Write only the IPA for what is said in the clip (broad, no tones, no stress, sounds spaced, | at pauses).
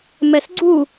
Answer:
m ɛ s ɡ͡ǀ u